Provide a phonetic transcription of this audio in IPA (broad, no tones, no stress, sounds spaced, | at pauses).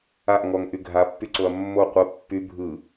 a ʔ ŋ ɔ ŋ ʔ y ɡʱ a pː y ǀ o ɐ̯ mː o qʷ ə pː y bʱ ɯ